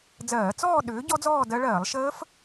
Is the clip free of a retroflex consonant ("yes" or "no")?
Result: no